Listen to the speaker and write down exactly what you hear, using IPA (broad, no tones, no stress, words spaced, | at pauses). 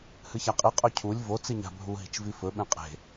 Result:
hɨçaqʼi qʼɵcʰulʲ vo t͡siɲa̤bʱu ɦi̤t͡ʃvifɵ ɓẽqʼe̤